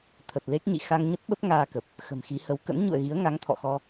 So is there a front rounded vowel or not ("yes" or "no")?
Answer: no